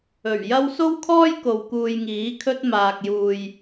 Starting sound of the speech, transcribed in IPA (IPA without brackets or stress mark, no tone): ɵ